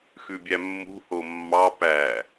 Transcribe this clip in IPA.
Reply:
x ʉ bʲ æ mː ṳ h o mː ɑ p æ

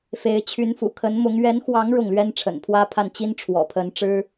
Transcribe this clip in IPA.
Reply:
f e˧˥ ɪ̯ t͡ɕʰ y˧˥ n f ṵ˨˩ kʰ ə˧˥ n m ʊ˧˥ ŋ ɥ ɛ˧˥ n x w ɑ˧˥ ŋ ɻ ʊ˥˩ ŋ l ɥ ɛ˥ n ʈ͡ʂʰ ə̰˨˩ n pʰ w ä˥ pʰ a˥˩ n t͡ɕ i˥ n ʈ͡ʂʰ w ɔ̰˨˩ pʰ ə˧˥ n ʈ͡ʂ ɻ̩˥

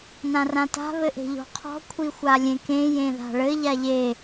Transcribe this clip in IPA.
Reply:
n ã r ã t a̤ β ɘ ʔ e̤ ʎ ɔ̤ qʰ ɔ̤ kʷʰ i xʷ a lʲ ẽ k ẽ j ẽ ð a̤ ɭ ɘ ʎ a ʎ e

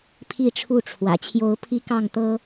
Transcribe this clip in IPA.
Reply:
pʰ i˥˨ ʈ͡ʂʰ u˥˨ ʈ͡ʂʰ w ä̰˨˩ t͡ɕʰ j o˨˦ ʊ̯ pʰ i˦ k ɑ˥˨ ŋ t̪ ɤ˦

